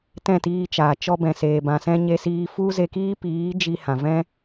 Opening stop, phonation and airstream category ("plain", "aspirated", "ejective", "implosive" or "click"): plain